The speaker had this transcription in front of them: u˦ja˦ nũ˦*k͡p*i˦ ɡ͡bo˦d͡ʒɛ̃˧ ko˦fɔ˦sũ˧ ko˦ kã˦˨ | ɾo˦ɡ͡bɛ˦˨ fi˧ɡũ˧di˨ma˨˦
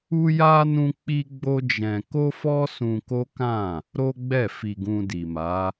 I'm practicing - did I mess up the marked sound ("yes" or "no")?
no